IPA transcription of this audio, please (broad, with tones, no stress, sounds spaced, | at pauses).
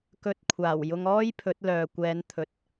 k ɵ˨ t̚ kʷʰ aː˨˩ w j ʊ˧ ŋ ɔː˥ j pʰ ɵ˨˥ t̚ l œː˨ kʷ ɛː˨˧ n t̪ʰ ɵ˨ t̚